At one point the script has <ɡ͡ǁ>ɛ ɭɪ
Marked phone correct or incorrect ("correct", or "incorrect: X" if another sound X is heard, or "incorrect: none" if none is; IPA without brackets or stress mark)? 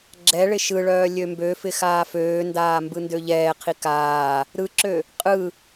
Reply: correct